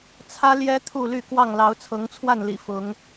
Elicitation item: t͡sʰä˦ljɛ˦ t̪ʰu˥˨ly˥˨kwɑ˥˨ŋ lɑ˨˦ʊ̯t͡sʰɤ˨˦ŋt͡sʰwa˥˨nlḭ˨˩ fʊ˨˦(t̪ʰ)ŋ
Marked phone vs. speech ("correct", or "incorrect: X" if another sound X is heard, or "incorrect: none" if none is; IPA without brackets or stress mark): incorrect: none